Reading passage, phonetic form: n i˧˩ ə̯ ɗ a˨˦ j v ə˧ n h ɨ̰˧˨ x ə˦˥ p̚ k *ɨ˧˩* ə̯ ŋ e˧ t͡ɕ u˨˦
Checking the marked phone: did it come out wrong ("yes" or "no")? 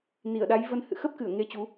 no